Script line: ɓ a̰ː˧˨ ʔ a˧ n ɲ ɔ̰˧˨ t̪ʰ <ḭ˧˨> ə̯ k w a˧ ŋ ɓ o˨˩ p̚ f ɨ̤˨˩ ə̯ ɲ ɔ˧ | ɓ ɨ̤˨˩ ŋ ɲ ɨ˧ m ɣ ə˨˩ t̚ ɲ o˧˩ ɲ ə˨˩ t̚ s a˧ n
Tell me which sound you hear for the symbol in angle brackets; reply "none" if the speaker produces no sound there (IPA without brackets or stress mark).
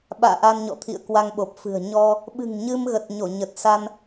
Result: ḭ˧˨